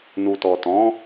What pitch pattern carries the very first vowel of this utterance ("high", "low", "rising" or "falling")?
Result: low